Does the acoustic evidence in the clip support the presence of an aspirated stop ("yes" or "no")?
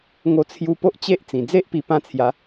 yes